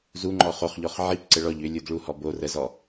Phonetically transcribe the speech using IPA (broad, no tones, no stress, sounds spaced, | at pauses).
z u ŋ͡ǃ ɔ χ o χ ʎ ɔ χ ʕ i p ǀ ə ɭ ɔ ʎ ʏ lʲ u d ɭ u h ɔ b o r ə z ɔ